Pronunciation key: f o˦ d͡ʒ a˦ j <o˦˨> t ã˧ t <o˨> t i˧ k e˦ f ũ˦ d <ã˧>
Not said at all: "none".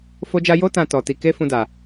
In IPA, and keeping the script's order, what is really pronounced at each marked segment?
o˦, ɔ˨, a˧

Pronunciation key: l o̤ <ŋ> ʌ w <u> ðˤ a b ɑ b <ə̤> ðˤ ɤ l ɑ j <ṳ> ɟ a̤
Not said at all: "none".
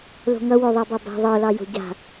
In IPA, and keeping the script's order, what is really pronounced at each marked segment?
ŋ, o, a̤, o̤

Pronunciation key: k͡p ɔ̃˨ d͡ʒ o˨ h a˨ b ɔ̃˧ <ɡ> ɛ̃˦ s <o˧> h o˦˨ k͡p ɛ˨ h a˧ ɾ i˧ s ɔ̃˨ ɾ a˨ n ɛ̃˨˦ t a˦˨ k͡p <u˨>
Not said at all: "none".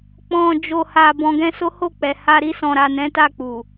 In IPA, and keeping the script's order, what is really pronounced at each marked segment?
ɡ, o˦, u˨

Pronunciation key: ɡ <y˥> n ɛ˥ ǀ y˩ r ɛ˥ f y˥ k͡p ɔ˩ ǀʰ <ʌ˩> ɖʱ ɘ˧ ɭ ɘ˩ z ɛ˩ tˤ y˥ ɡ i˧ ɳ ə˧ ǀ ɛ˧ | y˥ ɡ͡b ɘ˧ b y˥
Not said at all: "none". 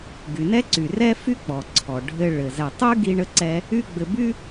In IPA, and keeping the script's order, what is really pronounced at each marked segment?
y˩, ɔ˩

